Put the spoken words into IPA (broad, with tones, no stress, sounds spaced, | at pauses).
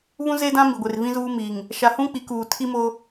β ũ˦ z e˦ d ã˦ m i˨ ɡʷ e˨ r v ĩ˦ z uː˦ m i˨ ŋ | ʃ a˨ h ũ˦ k͡p i˨˦ k uː˨ tʰ i˦ m o˦